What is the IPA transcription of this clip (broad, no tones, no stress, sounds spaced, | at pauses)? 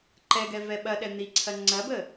ǃ ɛ ɡ ɛ v ɛ ɓ ɐ ɗ ɛ n̪ i ǀʰ ɐ ŋ͡ǀ ɐ b ə